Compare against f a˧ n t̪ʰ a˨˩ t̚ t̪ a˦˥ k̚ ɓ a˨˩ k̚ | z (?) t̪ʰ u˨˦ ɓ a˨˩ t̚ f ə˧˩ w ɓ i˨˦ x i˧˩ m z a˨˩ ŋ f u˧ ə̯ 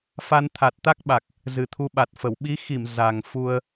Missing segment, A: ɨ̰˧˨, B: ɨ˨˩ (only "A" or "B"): B